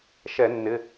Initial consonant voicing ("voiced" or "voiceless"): voiceless